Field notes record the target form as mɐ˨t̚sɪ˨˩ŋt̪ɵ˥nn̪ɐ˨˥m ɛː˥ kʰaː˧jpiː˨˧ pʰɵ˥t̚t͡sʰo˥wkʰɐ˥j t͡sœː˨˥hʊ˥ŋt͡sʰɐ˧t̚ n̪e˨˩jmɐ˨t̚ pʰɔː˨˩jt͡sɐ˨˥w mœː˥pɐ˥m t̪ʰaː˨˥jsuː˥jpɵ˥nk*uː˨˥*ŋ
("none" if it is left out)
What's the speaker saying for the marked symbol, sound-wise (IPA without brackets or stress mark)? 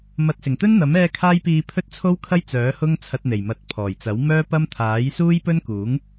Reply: uː˨˥